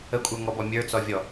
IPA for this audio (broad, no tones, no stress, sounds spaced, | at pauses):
ə kʷʼ ə˞ ŋ ɔ b ɔ mʲ ə˞ t͡s ɔ vʲ ɔ